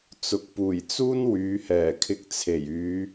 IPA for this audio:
t͡sʊ˨k̚ puː˨˩jt͡suː˥n wyː˨˧hɛː˨˩kʰɪ˧k̚t͡sʰe˨˩j yː˨˧

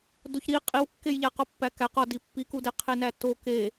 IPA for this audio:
doçɾi qʼiwkːejʎæqɒ pːækæq ɒdi pːikudeqʰe nætːo ke

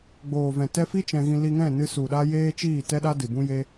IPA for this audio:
ɡ͡boː˨vɛ̃˨ tɛ˧fi˦ t͡ʃɛ̃˧ɣĩ˧ li˧ŋɛ̃˦˨nɨ˧ su˨ɗa˧ jeː˦t͡ʃiː˦˨tɛ˦ɗa˦ dɨ˨bũ˦je˦

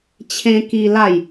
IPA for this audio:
t͡ɕʰẽ˦ki˦la˥˧j

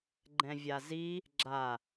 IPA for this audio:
ɡ͡ǃɛ̃vʲazi | ɡ͡ǁa

